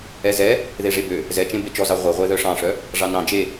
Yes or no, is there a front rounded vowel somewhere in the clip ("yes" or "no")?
yes